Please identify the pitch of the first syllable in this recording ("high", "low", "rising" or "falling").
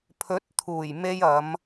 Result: rising